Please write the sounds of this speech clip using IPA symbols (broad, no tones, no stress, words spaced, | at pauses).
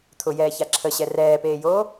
t̪ʰʊjɛːça ǁʰəɕɛ rɛːpeːjoː